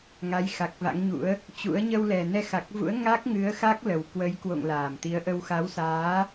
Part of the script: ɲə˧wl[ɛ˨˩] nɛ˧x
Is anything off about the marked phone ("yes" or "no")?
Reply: no